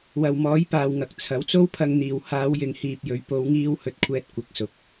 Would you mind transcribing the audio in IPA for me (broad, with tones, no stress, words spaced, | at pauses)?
wɐ˨wmɔː˨˥jpaː˨wŋɐ˨k̚ t͡sʰɐ˨˥wt͡so˥wpʰɐ˧ŋn̪iː˨w haː˨˧wjɪ˨ŋ hiː˧p̚jɵ˨˧ɥ po˨˧wŋiː˧whɵ˨t̚kʷʰɛː˧t̚ kʷɐ˨˥k̚sʊ˨˥k̚